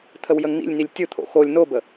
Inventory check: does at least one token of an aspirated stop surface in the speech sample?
yes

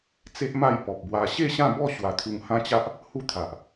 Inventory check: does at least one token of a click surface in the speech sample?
no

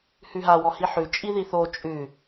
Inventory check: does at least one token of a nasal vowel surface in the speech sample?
no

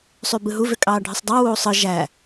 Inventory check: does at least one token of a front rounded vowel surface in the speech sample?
yes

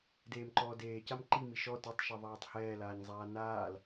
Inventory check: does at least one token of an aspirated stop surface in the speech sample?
no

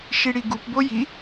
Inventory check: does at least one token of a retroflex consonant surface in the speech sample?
yes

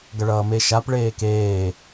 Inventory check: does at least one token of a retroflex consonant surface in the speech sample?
yes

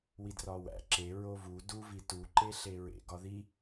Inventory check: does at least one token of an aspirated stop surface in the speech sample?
no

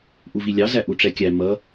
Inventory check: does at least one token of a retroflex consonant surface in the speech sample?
yes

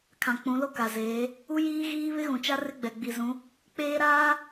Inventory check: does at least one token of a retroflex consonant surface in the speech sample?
no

